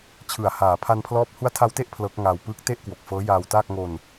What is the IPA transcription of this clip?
t͡ɕʰɯ˨˩a̯ haː˩˦pʰa˧npʰlɔː˦˥p̚ hu˦˥a̯tʰa˧wte˥˩ʔ pʰlɤː˦˥k̚ŋaː˧w pɯː˦˥k̚te˥˩ʔkwo˨˩k̚ fɤː˦˥jaː˧wtaː˥˩k̚ ŋo˧n

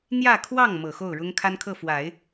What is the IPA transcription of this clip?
n̪jä˥˧kʰwɑ˥˩ŋmɤ˨˩ xo˥˩ʊ̯ɻʊ˥ŋkʰa˥nkʰɤ˥˩ fwa˨˩˦ɪ̯

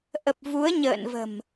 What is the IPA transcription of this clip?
ʔə˨˩p̚ vu˨˦ə̯ɲə̰ː˧˨nvə̤˨˩m

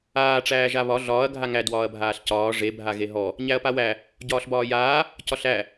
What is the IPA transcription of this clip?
aː ʈ͡ʂæːʒaβɒ ɮɒːɐ̯ ɡʱaŋæ dwɒːɐ̯bʱaːɬcɒː ʐe bʱaɣeɦɔ | ɲæɐ̯pawæ | ɟɒːɬbɒːjaː | cɒɬæ

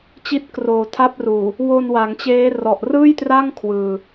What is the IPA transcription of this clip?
t͡ɕi˦˥t̚ kroː˨˩ tʰa˦˥p̚ruː˨˩ | wo˧n wa˩˦ŋt͡ɕeː˦˥ rɔ˨˩ʔrɯː˥˩jtra˥˩ŋ kʰwɯː˧

